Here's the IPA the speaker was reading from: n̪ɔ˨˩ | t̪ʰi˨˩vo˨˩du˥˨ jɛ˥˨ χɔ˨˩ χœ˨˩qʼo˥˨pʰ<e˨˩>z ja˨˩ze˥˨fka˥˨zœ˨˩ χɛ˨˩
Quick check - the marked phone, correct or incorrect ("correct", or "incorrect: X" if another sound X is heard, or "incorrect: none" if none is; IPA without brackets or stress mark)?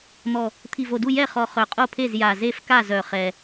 incorrect: e˥˨